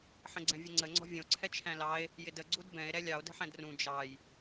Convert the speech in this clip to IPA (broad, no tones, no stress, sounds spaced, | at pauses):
ħ ə̃ ɡ͡ǀ ɛ̃ vʲ ə ŋ͡ǀ ə ŋ͡ǀ ɔ̤ vʲ ə̃ o̯ ǀʰ ɛ t͡ʃʰ æ̃ l ɑ e̯ | j ɪ d ə ɡ͡ǀ u d b ɛ̃ e̯ ɾ ɛ lʲ ɑ o̯ d ə̤ ħ æ̃ d r ũ d͡ʒ ɑ j